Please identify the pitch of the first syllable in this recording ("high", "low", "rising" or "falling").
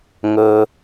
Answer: high